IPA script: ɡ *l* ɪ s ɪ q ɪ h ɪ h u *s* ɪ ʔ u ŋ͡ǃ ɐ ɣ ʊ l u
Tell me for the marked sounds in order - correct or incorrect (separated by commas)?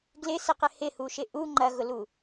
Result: correct, incorrect